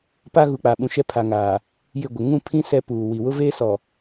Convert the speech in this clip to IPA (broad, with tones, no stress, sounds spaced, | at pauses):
p a˦ ɣ u˨ k͡p a˨ ɓ ũ˨ ʃ ɛ˦ pʰ a˨ ŋ aː˨ | j ɪ˦˨ ɡʷ ɪ˨ ŋ ũ˦˨ pʰ ĩ˦ s ɛ˦ p uː˨ w i˨ w ʊ˦ v eː˦ s ɔ˨